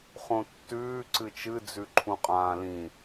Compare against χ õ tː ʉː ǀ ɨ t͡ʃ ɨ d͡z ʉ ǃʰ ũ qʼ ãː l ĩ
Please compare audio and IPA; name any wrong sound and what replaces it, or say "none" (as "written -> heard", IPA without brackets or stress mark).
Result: none